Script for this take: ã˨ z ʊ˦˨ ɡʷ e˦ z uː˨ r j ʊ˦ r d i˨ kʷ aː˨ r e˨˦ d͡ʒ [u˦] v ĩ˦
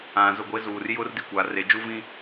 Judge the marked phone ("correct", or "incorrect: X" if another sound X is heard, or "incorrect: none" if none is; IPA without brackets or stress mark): correct